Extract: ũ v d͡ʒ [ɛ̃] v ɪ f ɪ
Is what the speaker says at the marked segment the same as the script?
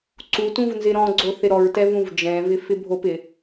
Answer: yes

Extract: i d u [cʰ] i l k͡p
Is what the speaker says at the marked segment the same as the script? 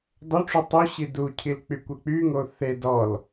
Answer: yes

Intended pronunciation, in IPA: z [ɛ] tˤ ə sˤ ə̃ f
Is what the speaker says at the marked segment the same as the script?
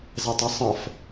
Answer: yes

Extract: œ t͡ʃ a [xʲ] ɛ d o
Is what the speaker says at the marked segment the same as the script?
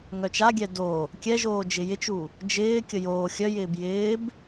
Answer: no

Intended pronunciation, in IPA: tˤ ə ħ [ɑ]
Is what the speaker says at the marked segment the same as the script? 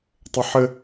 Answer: no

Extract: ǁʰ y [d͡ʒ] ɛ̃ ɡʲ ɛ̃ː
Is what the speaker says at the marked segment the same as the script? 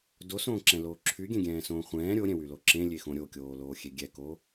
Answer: no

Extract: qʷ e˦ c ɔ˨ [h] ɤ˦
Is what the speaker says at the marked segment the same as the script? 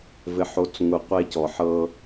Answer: no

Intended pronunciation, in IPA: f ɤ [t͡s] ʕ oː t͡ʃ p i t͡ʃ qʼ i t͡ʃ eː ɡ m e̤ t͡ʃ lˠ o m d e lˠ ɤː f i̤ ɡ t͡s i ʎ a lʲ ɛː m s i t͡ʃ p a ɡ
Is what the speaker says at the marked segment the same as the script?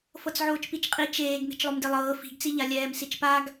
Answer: yes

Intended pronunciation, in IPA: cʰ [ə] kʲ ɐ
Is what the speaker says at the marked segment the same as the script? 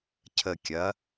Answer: yes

